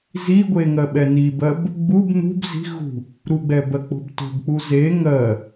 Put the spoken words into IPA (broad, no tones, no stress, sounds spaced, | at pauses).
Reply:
z i ɡʷ e ŋ ɜ ɓ ɛ n i b ɜ b | ɡ͡b u b n ṳ b z i̤ ɣ ṳ | ɾ u ɡ͡b ɛ b ɜ k͡p o̤ b t o̤ b k͡p u z e ŋ ɜ